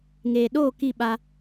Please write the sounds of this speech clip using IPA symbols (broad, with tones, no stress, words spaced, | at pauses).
ŋeː˨ɗoː˦˨ ki˦˨ɓa˧